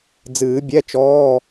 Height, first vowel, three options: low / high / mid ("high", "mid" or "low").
high